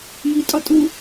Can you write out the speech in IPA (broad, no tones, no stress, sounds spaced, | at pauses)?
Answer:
j i tʼ ɒ tʼ u